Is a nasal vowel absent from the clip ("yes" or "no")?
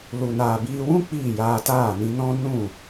no